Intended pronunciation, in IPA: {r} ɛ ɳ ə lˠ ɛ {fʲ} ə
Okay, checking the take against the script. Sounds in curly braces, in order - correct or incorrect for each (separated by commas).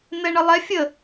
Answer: incorrect, correct